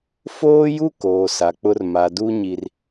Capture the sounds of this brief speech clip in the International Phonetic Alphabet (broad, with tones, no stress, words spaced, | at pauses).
foː˦ju˦ koː˨sa˨k͡pʊ˦r ma˨ du˦ɲi˨r